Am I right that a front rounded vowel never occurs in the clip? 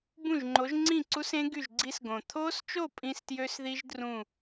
no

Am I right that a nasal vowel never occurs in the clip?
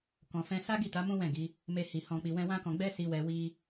no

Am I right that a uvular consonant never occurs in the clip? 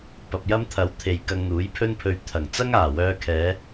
yes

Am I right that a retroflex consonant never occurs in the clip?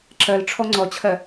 no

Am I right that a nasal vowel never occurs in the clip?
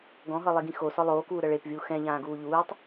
no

